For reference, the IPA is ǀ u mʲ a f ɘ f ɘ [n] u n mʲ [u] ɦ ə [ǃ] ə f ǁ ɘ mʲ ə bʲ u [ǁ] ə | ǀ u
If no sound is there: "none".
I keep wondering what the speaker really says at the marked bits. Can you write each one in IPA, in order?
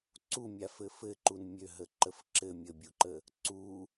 ǃ, ø, ǃ, ǃ

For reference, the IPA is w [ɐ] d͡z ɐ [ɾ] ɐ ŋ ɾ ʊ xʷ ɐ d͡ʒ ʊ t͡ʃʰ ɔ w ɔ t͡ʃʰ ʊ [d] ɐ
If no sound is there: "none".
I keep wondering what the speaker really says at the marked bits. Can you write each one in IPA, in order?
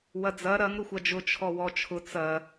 ɐ, ɾ, t͡s

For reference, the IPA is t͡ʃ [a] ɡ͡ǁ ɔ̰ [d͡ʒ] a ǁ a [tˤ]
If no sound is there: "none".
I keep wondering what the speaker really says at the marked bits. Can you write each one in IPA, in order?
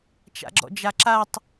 a̰, d͡ʒ, tˤ

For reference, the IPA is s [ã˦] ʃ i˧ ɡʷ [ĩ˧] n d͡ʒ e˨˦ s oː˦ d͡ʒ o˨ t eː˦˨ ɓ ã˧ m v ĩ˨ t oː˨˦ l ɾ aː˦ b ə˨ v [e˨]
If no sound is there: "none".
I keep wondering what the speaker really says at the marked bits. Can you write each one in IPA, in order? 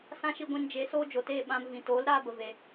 ã˦, ĩ˧, e˨

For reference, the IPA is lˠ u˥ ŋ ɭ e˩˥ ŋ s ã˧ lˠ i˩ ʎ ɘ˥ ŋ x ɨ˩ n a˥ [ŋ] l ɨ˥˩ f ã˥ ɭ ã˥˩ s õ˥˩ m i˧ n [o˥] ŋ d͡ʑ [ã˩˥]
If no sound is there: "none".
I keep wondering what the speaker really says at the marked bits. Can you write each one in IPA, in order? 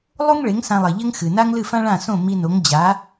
ŋ, o˩˥, a˩˥

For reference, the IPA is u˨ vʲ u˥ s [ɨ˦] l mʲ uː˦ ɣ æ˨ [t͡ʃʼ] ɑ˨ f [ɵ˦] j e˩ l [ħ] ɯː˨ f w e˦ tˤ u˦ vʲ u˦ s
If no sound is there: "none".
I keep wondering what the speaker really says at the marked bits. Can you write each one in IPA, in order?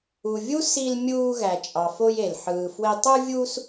i˦, t͡ʃʼ, o˦, ħ

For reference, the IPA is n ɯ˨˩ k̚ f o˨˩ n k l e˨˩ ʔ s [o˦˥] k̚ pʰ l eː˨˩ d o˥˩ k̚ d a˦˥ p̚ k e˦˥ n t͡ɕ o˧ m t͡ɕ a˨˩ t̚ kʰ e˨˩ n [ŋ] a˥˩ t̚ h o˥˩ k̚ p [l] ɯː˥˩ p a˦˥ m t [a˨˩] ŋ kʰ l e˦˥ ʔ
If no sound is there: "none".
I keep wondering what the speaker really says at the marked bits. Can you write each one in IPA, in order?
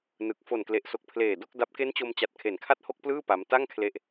o˨˩, kʰ, l, a˥˩

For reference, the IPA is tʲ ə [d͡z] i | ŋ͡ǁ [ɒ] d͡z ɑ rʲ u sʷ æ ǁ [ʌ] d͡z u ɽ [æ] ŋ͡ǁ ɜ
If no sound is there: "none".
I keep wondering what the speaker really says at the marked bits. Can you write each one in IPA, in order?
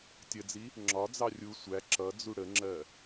d͡z, ɒ, ʌ, ə

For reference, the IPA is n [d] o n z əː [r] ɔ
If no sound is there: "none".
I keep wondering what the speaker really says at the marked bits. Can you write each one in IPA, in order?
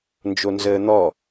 d͡ʒ, n̪

